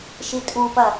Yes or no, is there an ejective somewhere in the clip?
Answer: yes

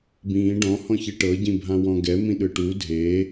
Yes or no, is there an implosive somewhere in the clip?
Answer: yes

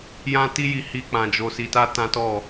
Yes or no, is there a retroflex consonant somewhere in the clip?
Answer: no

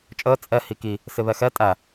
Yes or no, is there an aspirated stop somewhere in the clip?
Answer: no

